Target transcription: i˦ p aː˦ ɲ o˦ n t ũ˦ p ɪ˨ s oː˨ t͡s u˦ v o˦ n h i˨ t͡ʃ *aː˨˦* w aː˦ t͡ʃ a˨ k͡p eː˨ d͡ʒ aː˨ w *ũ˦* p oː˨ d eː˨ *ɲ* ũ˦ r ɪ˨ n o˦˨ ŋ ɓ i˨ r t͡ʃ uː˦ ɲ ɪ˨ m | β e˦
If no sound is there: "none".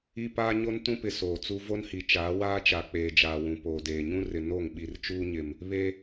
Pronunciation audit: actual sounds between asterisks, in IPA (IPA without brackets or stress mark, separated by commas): aː˨˦, ũ˨, ɲ